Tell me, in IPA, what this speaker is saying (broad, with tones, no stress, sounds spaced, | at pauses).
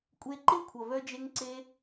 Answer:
kʷʼ e˧ ǃ ɪ˦˨ kʷʰ ʌ˨ v œ˦ d͡ʒ e˦ ŋ ǀ e˦